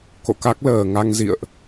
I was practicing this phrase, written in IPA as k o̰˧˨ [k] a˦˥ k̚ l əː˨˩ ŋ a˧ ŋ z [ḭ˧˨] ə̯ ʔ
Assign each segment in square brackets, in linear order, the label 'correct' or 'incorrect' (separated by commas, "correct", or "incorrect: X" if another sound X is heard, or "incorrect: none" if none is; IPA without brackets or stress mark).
correct, correct